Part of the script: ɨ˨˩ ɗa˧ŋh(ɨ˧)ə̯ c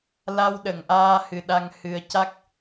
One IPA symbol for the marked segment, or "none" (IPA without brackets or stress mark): ɨ˧